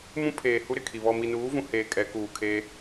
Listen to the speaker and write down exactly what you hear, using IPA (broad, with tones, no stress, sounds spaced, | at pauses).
m ũ˦ pʰ eː˨ h u˦ ɾ ɪ˦˨ kʰ i˨ β ɔ˨ m i˨ n uː˨˦ v ũ˨ h eː˨ kʼ ɛ˨˦ k uː˨ kʰ eː˦